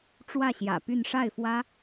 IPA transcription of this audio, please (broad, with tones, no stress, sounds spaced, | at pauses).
ʈ͡ʂ w ä˥˩ ɕ j ä̰˨˩ p y˥˧ n ʂ a˥˩ ɪ̯ f w ä˥